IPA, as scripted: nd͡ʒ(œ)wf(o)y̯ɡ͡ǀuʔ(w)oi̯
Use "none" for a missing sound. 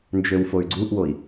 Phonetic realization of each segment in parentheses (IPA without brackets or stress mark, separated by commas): ø, o, w